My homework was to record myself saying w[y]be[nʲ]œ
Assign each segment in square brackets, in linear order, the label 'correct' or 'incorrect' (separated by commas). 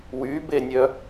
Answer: correct, correct